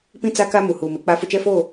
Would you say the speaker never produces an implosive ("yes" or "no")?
yes